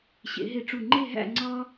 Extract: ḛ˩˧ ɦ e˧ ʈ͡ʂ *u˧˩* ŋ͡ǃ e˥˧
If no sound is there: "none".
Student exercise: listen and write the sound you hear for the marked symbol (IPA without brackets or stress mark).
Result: u˧˩